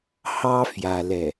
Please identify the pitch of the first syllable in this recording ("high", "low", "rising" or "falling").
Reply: high